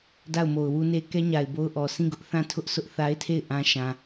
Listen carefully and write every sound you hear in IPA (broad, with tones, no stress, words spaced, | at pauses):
da˦˨ʊ̯mo˨ʊ̯wu˦ne˦ kɛ˦ɲa˨ɪ̯bo˦ʊ̯ʔɔ˨ sʰĩ˦˨ɡʊ˦ʔ θã˦˨ tʰʊ˦ʔ sʊ˦ʔθa˦ɪ̯tʰe˦˨ɪ̯ ʔã˦ ʃã˨